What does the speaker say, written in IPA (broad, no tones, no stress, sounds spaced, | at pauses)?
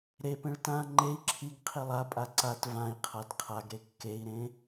ɾ e p ẽ ɭ t ã ŋ͡ǃ e i̯ ǁʰ i ɡ qʰ i lˠ a pʼ a ǀ a t v ã i̯ qʰ a d qʰ a ɡ ɾ e kː e i̯ ɾ ẽ